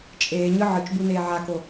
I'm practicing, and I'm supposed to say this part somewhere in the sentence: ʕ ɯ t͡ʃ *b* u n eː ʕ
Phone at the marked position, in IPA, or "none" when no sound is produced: b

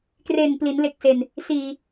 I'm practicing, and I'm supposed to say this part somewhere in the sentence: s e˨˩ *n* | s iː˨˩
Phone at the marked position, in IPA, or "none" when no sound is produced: n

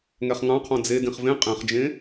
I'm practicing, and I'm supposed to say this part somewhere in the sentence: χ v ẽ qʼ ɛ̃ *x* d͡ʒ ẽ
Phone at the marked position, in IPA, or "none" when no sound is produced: χ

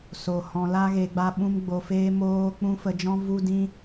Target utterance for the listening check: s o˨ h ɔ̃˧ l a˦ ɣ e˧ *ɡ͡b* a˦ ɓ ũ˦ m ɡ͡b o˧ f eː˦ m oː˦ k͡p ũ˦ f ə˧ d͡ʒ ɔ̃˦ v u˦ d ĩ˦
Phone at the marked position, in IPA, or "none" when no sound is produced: ɡ͡b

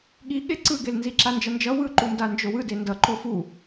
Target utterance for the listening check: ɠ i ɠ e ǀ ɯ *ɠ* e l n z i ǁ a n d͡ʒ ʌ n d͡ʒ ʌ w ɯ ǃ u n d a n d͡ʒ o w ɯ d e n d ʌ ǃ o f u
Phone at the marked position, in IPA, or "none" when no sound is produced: ɡ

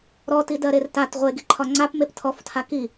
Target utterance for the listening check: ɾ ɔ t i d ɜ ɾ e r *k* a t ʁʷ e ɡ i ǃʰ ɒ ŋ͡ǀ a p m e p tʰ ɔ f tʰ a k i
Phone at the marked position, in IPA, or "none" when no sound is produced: t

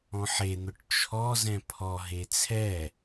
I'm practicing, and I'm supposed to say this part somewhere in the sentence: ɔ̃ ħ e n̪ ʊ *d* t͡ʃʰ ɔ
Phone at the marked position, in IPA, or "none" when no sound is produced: ʈ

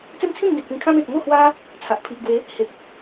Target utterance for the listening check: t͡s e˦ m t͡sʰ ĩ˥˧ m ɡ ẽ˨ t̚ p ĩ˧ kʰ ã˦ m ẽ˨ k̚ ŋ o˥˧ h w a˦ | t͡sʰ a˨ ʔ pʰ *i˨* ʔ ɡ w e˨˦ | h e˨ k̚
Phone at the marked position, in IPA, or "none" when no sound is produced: i˨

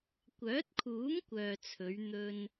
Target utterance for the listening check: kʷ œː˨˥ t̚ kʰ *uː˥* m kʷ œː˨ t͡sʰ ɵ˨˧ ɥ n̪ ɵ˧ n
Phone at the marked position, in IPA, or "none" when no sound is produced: uː˨˥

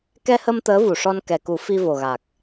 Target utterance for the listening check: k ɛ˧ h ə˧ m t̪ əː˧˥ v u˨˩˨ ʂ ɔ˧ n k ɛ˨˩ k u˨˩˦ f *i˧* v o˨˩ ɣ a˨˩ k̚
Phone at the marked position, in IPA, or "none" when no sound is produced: i˧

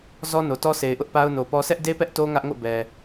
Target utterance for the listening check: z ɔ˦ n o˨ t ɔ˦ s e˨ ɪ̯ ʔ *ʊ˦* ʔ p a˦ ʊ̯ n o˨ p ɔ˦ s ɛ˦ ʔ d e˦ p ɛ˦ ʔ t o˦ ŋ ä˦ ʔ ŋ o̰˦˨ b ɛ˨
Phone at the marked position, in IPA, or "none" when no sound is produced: ʊ˦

